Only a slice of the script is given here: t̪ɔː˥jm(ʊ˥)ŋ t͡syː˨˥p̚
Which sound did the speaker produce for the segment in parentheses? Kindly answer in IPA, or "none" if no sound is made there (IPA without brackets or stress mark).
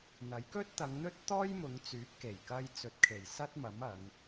ʊ˨˧